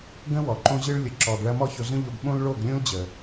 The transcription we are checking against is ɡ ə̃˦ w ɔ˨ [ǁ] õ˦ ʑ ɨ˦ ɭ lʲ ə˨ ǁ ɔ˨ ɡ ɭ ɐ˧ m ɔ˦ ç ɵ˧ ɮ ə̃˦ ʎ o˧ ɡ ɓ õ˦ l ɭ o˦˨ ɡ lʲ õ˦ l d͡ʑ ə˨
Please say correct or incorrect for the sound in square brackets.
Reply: incorrect